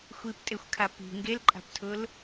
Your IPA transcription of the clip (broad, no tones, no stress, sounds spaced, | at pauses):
xʷ i p tʼ e xʷ kʰ a p i̤ ŋ ɡ e l ǃʼ a̤ p tʰ ʊ l